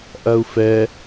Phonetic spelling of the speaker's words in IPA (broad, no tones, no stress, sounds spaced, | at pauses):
ʔ ɐ u̯ f ɛ